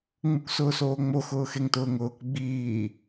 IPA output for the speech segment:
ŋ͡m u k s ʊː s oː ŋ͡m o x ʊː x e ŋ t ʊː ŋ ʊː k ɡ͡b iː

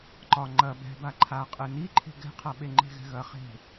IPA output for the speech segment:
ǃ ɒ ŋ͡ǃ ɐ b ɛ̤ b a ǃʰ a qʼ ɘ n i ǃʰ e̤ ɡ ɛ̤ qʰ a ɓ e ŋ͡ǃ e̤ ɣ ɛ̤ ɣ ɐ χ e̤

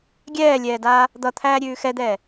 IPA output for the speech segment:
ɡʲ ɛː lʲ ɛː d aː | d̪ ʌ t̪ʰ æː ɾʲ ʉː x ɛ d̪ ɛː

